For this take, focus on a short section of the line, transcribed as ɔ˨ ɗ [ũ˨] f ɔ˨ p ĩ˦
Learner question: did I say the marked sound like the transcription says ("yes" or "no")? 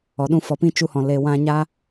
no